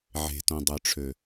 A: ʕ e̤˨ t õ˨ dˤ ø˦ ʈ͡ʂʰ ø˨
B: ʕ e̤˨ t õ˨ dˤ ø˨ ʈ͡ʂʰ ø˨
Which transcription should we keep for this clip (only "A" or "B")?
B